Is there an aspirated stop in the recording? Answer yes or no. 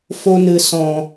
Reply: no